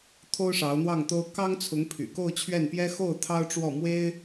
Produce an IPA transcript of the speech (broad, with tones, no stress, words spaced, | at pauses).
t̪ʰo˥ʊ̯ʂɑ˧˥ʊ̯n̪wɑ˥˩ŋt̪o˥ʊ̯ kɑ˥ŋt͡sʰʊ˧˥ŋ pʰy̰˨˩ko˥˧ʊ̯t͡ɕʰɥɛ˥˩npjɛ˥ xo˥˩ʊ̯ t̪ʰɑ˥ʊ̯ʈ͡ʂwɔ˥˩ mwe˥ɪ̯